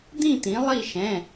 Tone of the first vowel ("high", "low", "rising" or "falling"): falling